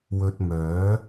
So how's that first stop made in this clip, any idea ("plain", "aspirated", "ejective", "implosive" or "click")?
plain